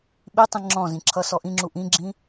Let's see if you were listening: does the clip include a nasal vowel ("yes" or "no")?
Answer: yes